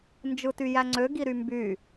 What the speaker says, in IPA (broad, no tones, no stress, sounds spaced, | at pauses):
n d͡ʒ ɯ t y j æ ŋ͡ǀ ø ɡ i ɾ y m b y